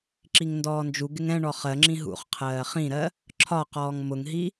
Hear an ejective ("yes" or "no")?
no